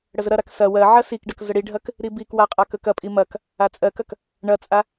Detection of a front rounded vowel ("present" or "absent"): absent